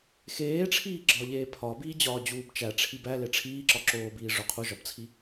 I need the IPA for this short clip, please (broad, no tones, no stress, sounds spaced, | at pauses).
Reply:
x eː ʈ͡ʂʰ iː ɡ͡ǁ ɒ ʎ eː pʰ ɒ b iː d͡ʑ ɒː d͡ʑ uː b t͡ʃ æ ʈ͡ʂʰ i b æ l e ʈ͡ʂʰ iː ǁ ɒ ǁ oː b iː ʐ o qʰ u ʒ ɒ b t͡sʰ i